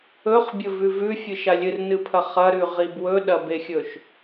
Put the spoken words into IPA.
ɵχbʲɵvʉ vʉfʲɨʃa lʲɨrnɨpʰɐ χɐɾʉʁib wɵɗɐbexʲɵʃ

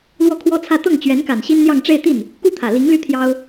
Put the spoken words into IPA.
lwɔ˥˩kʰwɔ˥t͡sʰä˥˧ t̪ɤ˥˩ŋt͡ɕɥɛ˧˥nka˨˩n ɕi˥nn̪jɑ˥˧ŋʈ͡ʂe˥˧ɪ̯t̪i˥˩n | ku˥t̪ʰä˨˩ li˧˥ŋly˥˩ t̪ʰjɑ˥ʊ̯

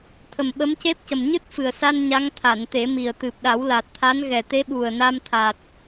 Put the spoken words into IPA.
t̪ʰə˨˩mɓə˧˥mce˦˥p̚cə˨˩m ɲɨ˦˥t̚fɨ˨˩ə̯sa˧n ɲa˧˥ŋt̪ʰa˨˩˨n t̪e˨˩˦mi˨˩ə̯ t̪ɨ˨˩p̚ɗa˨˩˦wla˨˩t̚t̪ʰa˧˥n ɣɛ˨˩t̪e˧˥ɓu˨˩ə̯ na˧mt̪ʰa˨˩t̚

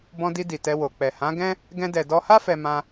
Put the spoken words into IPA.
bɔ̃˧di˧ di˨tɛ˧wo˨k͡pɛ˨ hã˨˦ɡɛ̃˦ | ɡɛ̃˧dɛ˨dɔ˧ha˦ fɛ˧mã˧

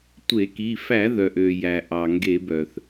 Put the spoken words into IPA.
tʷe˧˩˧ki˩˧˩ fæ˧˩˧ðœ˩ʔø˩ jæ˩ʔɑ˩ŋɡe˧˩˧ bœ˩θ

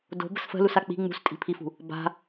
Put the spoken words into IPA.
do̤ bə̤sfə̤lusa k͡pi̤ ŋ͡mṳstʼi̤pʰifṳ | ba̤

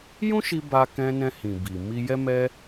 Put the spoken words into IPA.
jũ˦ʃi˧ ba˧kɛ̃˧ nɛ̃˧ hĩ˨ bi˨ mi˧jɛ˦mɛ˦

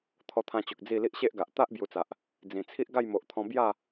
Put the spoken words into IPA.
t̪ʰɔ˧t̪ʰã˧t͡ɕo˨k̚ d͡zi˥˧ li˦ʔɕe˦ʔɡa˨ʔ t̪a˦ʔ bju˧t͡sa˨ʔ | d͡zĩ˨˩t͡sʰi˦ʔ ɡa˥˧jmo˨ʔt̪ʰɔ̃˧ bja˥˧

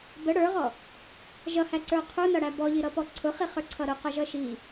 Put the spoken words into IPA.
bə ɽə˞ʁɔ | ʒʌhæǀə˞ qʰunʌɽæ bɔʎiɾʌpɔ ǀʰʊχiχə˞ǀʰʌ ɾʊqʌʒʌ ʃi

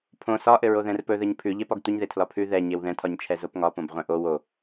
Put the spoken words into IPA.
pʰõ sɒ ʔɘɹoðɛ̃rpɵ ðɘɲpʰʉ ʎepɒɡtʷəɲðe tʰlɒpʰʉ ðɛ ɲewðɛ̃tʰɒɲt͡ʃʰɛ zopŋɒpõb ʁʷɛ̃ʔo wo

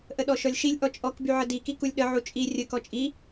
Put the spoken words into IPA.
ʔəɗɔʃɔlʲʃilʲ ʔɔt͡ʃʼɔk byʕədi kikulʲɗə ʕut͡ʃʼi rʲə kɔt͡ʃʼi

